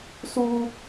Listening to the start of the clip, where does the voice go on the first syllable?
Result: high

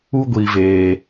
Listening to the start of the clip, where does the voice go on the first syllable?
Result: high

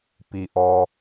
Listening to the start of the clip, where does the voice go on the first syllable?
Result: low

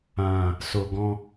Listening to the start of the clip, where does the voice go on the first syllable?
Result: low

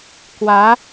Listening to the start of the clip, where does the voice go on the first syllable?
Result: rising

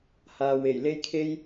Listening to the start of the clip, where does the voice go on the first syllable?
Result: low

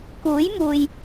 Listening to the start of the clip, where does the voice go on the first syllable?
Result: rising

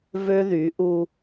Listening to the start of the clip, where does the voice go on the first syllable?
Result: high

